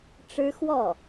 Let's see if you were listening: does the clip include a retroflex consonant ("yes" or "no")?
yes